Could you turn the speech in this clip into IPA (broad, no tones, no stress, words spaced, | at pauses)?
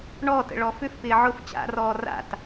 ɳɔːtə̰ ɭɔfʏf pɪːʕʊf t͡ɕa̰rɔː ra̰t